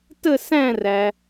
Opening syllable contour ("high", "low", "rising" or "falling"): falling